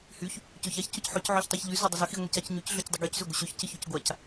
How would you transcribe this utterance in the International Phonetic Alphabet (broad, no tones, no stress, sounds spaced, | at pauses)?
h y ç | c ø ç a ç c ʊ c ħ ø c ʕ ø ç tˤ y ç ʎ y z ʊ dˤ ɪ z ø x i ŋʷ i c a c ɲ y c ɮ ø c dˤ ɪ ɡ y c z ø ɡʷ ɪ ɕ ø ç c ɪ ç ø c ɡʷ a c